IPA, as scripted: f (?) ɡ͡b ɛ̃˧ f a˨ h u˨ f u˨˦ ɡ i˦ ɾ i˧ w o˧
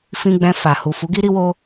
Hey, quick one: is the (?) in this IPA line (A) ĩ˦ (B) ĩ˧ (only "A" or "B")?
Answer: B